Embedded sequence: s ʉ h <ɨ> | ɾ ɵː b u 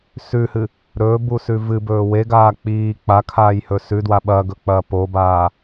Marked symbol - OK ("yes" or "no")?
yes